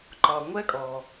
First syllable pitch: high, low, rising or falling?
low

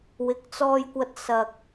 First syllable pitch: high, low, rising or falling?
rising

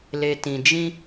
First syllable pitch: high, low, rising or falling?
low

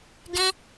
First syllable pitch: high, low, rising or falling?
high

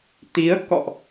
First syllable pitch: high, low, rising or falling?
rising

